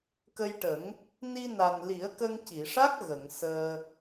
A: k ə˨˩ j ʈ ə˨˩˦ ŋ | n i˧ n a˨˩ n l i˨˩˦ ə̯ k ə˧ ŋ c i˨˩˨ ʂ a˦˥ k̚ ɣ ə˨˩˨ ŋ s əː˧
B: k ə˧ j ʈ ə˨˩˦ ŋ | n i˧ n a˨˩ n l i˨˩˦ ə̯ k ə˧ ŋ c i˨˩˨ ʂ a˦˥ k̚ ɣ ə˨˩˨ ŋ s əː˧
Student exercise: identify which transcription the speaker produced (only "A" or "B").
B